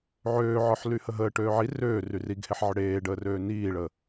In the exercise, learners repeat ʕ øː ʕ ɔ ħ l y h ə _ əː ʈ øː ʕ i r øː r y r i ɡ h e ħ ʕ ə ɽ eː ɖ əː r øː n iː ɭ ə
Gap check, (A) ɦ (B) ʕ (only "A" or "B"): A